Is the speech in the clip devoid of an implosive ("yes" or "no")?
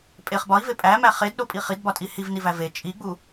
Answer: no